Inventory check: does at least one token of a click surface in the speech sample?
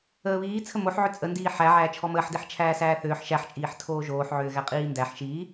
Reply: no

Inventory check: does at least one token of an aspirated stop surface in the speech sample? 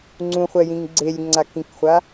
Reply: no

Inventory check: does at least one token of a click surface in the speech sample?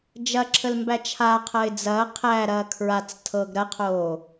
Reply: yes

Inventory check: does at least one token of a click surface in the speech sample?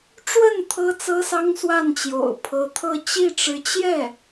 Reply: no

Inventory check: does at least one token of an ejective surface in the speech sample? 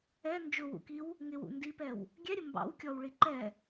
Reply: no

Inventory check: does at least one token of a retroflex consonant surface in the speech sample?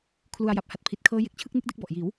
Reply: no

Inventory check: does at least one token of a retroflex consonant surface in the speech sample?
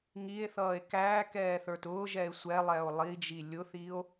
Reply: no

